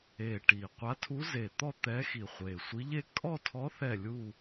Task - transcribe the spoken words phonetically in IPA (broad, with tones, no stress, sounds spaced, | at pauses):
e˨˩ ʈ i˨˩ qʷ a˧˥ tʰ u˧˥ z e˨˩ t̪ ɔ˥˧ t̪ ɛ˧˥ x i˨˩ χʷ e˨˩ sʷ i˧˥ ʎ e˥˧ kʼ ɔ˥˧ tʰ ɔ˧˥ θ ɛ˥˧ lʲ u˥˧